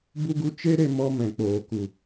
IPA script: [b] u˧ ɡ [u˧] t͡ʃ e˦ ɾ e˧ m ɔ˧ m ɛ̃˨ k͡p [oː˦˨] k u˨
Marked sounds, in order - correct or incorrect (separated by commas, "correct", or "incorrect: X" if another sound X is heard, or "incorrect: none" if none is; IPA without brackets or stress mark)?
correct, correct, incorrect: oː˨